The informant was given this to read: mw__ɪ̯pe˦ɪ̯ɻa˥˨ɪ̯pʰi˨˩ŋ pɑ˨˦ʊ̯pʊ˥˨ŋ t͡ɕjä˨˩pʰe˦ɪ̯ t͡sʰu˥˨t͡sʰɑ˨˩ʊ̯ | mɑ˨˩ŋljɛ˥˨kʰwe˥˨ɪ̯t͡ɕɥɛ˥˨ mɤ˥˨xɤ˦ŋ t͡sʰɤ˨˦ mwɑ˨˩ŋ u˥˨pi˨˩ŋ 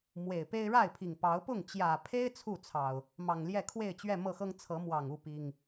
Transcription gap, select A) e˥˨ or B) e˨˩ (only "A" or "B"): B